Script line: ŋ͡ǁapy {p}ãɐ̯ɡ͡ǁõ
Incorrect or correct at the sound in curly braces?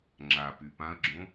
correct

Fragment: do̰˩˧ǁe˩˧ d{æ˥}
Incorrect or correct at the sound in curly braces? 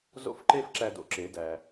incorrect: æ˩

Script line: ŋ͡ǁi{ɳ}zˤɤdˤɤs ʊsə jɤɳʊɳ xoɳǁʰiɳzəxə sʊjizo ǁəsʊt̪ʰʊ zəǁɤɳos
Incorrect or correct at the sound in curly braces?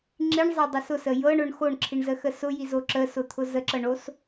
correct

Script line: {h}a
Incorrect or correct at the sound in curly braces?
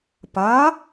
incorrect: p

